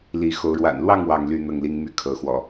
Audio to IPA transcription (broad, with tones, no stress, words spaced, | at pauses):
li˨˦xo˨˦ʊ̯ ɻwa̰˨˩nlwɑ˥˨ŋ wɑ˥˨ŋly˥˨ n̪ɤ˥˨ŋli˦ŋmy˥˨ kʰɤ˨˦xwɔ̰˨˩